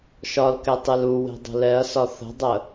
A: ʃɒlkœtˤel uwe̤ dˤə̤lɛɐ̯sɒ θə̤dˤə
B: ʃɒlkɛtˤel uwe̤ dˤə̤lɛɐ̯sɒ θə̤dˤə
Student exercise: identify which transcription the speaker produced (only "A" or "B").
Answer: B